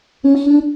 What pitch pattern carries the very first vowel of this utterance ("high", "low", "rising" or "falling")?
high